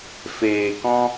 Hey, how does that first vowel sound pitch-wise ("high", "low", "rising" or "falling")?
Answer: low